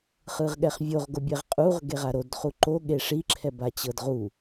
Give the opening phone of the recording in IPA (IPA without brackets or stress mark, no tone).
χ